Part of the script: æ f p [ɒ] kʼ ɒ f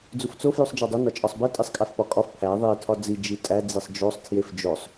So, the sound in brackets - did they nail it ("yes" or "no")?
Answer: yes